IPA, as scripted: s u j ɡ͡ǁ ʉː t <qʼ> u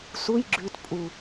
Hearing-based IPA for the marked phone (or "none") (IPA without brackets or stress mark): pʼ